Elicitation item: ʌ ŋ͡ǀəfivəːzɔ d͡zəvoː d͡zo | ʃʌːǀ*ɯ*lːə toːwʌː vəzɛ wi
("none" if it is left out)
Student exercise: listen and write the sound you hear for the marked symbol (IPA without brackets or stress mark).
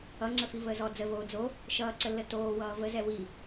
ə